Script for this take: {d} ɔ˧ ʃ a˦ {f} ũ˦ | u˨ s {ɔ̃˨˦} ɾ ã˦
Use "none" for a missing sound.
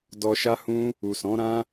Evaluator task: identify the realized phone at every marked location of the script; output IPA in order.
d, h, ɔ̃˨˦

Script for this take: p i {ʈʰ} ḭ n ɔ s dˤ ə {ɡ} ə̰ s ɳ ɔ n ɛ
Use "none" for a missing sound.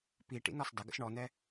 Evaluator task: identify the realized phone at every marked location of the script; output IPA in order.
ʈ, ɡ

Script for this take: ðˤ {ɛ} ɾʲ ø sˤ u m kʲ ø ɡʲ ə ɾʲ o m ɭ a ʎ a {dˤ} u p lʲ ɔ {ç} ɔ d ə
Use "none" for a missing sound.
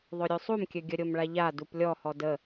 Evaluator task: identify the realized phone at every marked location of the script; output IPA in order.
ø, d, h

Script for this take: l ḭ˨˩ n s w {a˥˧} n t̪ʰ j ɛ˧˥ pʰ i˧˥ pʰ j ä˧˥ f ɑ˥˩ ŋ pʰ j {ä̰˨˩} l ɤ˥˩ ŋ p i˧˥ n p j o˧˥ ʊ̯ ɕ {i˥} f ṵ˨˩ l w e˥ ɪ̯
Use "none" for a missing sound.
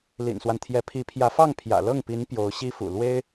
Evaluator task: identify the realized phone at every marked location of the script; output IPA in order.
a˦, ä̰˨˩, i˥

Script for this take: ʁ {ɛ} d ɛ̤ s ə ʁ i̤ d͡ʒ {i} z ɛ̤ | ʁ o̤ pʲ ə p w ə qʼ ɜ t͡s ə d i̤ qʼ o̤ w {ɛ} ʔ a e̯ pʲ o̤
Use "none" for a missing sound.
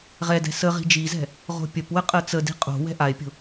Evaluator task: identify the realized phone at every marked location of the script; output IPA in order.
ɛ, i, ɛ̤

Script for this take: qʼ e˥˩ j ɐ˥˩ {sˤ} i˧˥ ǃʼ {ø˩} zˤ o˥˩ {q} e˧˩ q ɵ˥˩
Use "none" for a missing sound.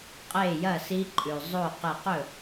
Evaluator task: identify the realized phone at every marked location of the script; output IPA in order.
s, ʉ˩, q

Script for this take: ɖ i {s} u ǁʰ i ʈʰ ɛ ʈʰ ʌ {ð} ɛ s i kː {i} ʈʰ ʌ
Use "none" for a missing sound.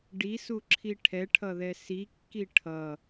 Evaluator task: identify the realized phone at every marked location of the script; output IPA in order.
s, ð, i

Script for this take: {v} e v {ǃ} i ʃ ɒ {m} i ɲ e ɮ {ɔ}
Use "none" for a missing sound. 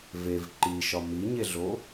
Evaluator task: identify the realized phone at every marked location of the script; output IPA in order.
v, ǃ, m, o

